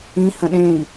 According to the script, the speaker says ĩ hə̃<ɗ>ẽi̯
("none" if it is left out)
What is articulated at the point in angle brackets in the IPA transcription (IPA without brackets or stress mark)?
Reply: ɗ